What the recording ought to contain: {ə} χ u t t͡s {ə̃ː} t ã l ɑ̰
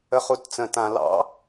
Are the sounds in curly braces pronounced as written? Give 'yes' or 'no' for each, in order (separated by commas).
yes, no